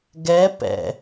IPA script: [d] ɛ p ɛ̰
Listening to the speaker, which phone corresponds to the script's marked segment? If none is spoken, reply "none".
ɡ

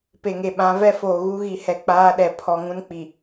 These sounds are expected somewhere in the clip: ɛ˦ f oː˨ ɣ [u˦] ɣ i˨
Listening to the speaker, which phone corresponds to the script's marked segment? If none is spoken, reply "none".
u˦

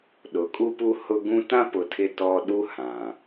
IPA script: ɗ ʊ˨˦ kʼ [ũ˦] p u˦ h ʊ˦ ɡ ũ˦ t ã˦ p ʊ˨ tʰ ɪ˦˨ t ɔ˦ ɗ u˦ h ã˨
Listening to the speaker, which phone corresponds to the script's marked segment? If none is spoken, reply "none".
u˦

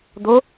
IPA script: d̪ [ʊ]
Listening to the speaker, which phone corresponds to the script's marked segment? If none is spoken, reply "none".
ʊ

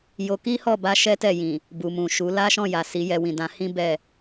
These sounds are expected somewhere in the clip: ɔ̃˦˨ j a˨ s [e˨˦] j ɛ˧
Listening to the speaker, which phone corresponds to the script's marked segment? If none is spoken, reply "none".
i˨˦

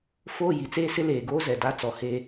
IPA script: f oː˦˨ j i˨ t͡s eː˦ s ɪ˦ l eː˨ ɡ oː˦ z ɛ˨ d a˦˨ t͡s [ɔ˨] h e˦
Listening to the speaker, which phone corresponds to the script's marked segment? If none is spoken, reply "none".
ɔ˨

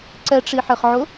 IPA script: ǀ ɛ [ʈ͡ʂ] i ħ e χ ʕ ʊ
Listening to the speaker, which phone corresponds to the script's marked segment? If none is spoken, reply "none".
ʈ͡ʂ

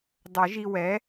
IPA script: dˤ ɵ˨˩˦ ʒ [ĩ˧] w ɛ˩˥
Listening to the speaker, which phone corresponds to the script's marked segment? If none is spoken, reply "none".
i˧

